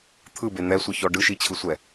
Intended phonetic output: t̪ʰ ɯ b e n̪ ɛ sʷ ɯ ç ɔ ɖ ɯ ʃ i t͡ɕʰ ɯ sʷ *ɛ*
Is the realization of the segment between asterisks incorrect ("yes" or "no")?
no